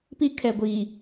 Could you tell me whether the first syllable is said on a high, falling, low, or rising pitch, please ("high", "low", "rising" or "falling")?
high